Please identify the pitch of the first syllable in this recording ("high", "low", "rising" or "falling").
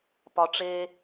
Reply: low